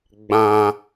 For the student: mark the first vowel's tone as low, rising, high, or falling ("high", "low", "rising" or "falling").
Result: high